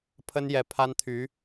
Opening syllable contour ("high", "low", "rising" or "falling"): high